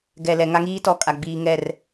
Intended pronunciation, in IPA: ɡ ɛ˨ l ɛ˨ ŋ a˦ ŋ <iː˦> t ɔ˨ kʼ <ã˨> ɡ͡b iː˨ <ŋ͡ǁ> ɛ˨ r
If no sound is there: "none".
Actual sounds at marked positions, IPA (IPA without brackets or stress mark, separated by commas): iː˦, a˨, ŋ